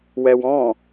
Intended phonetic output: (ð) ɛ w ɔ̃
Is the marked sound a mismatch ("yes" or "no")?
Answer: yes